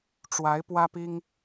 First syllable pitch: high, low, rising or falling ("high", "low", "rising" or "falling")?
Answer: rising